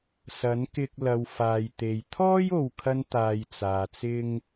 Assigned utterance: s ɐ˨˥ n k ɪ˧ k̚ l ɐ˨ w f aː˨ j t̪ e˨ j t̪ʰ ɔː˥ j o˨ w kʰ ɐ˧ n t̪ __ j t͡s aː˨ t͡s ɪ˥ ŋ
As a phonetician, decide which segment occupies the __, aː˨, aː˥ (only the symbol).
aː˨